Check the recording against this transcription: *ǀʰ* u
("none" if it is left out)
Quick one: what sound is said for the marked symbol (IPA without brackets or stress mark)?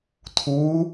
tʰ